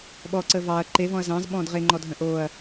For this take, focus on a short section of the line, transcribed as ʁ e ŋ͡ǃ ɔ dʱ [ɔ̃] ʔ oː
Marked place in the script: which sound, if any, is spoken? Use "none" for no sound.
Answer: ə̃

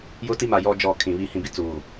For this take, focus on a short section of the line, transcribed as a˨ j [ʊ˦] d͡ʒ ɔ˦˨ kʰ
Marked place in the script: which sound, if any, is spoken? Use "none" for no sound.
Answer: ɔ˦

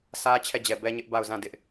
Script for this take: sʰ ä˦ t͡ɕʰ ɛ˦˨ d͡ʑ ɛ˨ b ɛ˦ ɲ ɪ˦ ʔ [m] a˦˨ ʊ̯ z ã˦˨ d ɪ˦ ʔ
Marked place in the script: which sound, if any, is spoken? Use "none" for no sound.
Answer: b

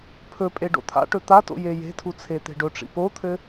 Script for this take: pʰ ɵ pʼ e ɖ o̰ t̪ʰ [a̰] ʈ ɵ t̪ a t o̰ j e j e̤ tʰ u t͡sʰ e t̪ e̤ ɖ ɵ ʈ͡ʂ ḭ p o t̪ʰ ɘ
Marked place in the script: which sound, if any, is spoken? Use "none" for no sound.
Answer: a̰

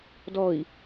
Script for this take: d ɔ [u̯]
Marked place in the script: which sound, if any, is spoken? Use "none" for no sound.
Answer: i̯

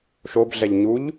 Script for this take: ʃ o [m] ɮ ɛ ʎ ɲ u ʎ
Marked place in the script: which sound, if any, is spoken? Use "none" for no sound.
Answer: b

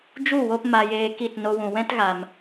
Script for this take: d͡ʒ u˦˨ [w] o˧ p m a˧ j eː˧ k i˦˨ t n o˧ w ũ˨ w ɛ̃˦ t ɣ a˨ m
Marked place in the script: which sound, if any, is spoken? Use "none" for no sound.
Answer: w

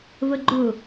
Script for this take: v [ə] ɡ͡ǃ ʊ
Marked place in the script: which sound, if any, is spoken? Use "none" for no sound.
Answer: ə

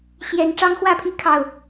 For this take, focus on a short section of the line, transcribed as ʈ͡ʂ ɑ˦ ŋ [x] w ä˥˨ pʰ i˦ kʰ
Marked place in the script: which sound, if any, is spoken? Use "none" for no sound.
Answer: x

